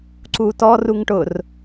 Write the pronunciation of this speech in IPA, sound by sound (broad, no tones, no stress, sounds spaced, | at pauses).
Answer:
ǀ u t ɔ r u ŋ ʈ ʊ r